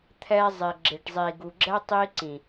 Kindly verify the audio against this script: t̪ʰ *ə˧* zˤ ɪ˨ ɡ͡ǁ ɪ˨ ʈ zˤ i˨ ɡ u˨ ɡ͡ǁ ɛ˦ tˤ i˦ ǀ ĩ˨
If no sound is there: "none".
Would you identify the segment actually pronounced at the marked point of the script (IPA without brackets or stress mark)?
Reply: ɛ˧